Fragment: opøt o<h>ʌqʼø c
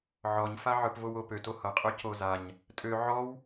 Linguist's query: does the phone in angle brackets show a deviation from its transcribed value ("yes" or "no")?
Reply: no